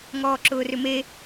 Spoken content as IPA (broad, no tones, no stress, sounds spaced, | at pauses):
ŋ ɔː ǁ ʊː r ʏ m e